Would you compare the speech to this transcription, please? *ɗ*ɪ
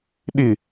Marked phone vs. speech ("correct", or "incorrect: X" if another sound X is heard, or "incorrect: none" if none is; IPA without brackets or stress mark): correct